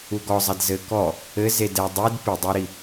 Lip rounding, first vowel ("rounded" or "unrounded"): rounded